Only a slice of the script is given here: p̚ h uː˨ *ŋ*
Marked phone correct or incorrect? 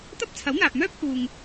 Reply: correct